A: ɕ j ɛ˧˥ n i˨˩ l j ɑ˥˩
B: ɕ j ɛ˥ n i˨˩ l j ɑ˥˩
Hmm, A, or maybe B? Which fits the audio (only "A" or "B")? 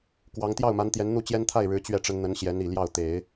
A